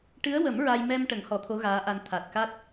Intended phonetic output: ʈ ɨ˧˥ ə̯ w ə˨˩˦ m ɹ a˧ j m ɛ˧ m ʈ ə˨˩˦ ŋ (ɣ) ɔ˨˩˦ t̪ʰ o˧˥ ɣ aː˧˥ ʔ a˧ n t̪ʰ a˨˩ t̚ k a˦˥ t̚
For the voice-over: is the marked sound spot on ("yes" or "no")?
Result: no